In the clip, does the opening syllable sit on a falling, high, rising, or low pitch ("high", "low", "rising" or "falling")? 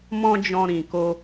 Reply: high